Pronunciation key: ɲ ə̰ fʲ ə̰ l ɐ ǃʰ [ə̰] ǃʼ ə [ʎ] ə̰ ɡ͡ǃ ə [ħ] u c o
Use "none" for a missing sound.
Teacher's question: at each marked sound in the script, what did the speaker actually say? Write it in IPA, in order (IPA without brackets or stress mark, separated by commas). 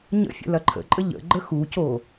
ə̰, ʎ, x